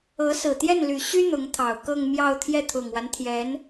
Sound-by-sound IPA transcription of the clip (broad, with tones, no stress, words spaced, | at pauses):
ɤ˧˥sɹ̩˨˩ t̪jɛ˥˩nly˨˩ɕy˥ n̪ʊ˧˥ŋt̪ʰɑ˨˩ʊ̯ kɤ˥˧ŋmjɑ˥˧ʊ̯ t̪ʰjɛ˥˩t̪ʰʊ˨˩ŋwa˦nt̪ʰjɛ˧˥n